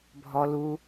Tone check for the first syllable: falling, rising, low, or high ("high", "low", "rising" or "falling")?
low